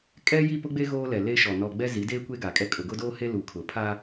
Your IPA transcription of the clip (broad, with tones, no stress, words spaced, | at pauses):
kʼɛ˦ji˦˨pʊ˦ɡ͡be˦ ɣoː˦lɛ˨le˦ʃɔ˨ nɔ˨ɡ͡bɛ˦ zi˨˦deː˦ kʷe˦ɡa˨kʼɛ˦ kʼʊ˨ɡʊ˦doː˦he˦ lu˨kʰʊ˨ pʰa˦